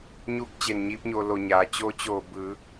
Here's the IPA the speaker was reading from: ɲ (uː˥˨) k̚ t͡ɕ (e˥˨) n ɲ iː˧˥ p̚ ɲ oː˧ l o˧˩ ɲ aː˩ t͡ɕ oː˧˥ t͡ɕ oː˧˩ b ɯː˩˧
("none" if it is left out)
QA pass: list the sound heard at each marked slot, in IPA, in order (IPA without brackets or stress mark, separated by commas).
uː˥˨, e˧˩